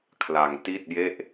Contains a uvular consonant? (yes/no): no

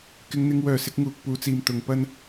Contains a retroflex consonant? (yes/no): no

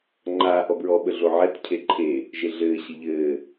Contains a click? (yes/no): yes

